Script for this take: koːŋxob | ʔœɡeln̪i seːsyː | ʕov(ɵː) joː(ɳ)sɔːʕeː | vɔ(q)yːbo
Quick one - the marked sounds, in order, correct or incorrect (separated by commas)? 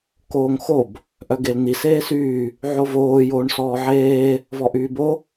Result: incorrect, correct, incorrect